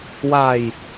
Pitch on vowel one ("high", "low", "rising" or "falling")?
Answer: low